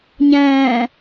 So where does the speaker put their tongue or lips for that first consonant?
palate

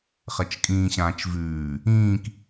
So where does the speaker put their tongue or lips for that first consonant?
uvula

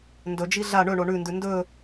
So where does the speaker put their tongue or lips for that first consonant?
tongue tip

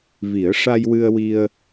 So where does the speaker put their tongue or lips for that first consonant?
lips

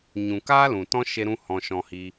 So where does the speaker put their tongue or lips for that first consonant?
palate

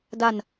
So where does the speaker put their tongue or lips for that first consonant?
tongue tip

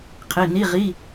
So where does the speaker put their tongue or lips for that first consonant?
uvula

